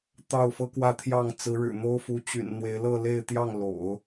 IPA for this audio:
t̪ ɑ˥˩ ʊ̯ f ɤ˥ k w ä˥˧ t̪ʰ j ɑ˥˩ ŋ t͡s ɹ̩˧˥ ɻ ɻ̩˨˩ n̪ o˥ ʊ̯ f u˧˥ t͡ɕ y̰˨˩ n n̪ w e˧˥ ɪ̯ l ɤ˥˧ l e˥˧ ɪ̯ t̪ j ɑ˥˩ ŋ l o̰˨˩˦ ʊ̯

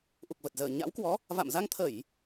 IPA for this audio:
ʔ u˨˩ k̚ v ə˨˩ t̚ z əː˧˩ ɲ a̰˧˥ w k w ɔ˨˦ | v a̰˧˨ m z a˧ ŋ t̪ʰ ə˧˩˨ j

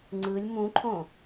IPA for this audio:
ŋ͡ǀ ɯ lʲ m ũ ǃʰ õ

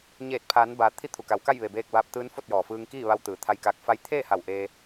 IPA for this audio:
ɲ eː˧˩ t̚ pʰ aː˩˧ n b aː˩˧ t̪ʰ i˧˥ t̪ʰ u˩ k a˩˧ w k a˥˨ j ʋ e˩ b eː˧ k̚ b aː˧ p̚ t̪ ɯː˧˥ n f o˥˨ t̚ j ɔː˩ f ɯː˧ ŋ k iː˥˨ ʋ a˧ w t̪ ɯː˩˧ t̪ʰ a˧ j k aː˧ k̚ f a˧˥ j t̪ʰ eː˥˨ h a˧˩ w ʔ eː˧

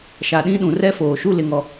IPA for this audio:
ʃ a˨ ɗ ĩ˦ ɗ ũ˨ r ɛ˦ f oː˨ ʃ u˦ l ɪ˨ ŋ ɔ˨

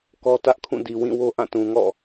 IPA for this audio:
k ɔ˦ t ä˦ ʔ kʰ ũ˦˨ d i˨ w ĩ˦˨ w o˦ ʔ ã˦˨ t ũ˨ ŋ ɔ̰˦˨

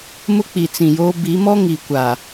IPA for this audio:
m ʊ˦ k͡p i˨ t͡s ĩ˨ j oː˦ b i˨˦ m ɔ˦ ŋ i˨ kʷ a˨

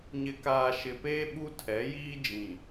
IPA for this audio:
ɲ ɪ˨ k aː˨ ʃ ɪ˨ p eː˦ ɓ u˦ tʰ ɛ˨˦ j iː˦ d͡ʒ ĩ˨

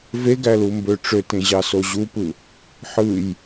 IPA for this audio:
v e ɡ æ l u m b ø ʈ͡ʂ ø t ẽ ʑ ɑ s o ʑ u p ɯ | ħ ɯ j

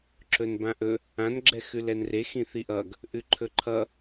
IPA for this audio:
ǁ ɵ n b ã ʔ ɵ | ã n ɡ͡ǁ ɛ x ʉ l ɛ n r e x ĩ θ i ʔ ʌ ɡ | ʔ ʉ ǃʰ ɵ ǃʰ ʌ

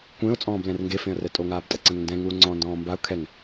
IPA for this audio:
kʷ ẽ ʊ̯ t͡sʼ ɔ̃ː b l ɛ̃ r ŋ ɡ e f ẽ ə̯ r ɛ tʼ o ŋ aː b tʼ ɛ ǀ ẽ ŋ n d ɛ̃ ŋ uː ŋ͡ǀ ɔ̃ː n d ɔ̃ː m b a ʊ̯ kʰ ɛ ŋ

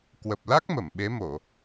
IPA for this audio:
k w ə˨˩ p̚ l a˦˥ k̚ m ə˧˩ m ɓ e˨˦ m o˧˩˨

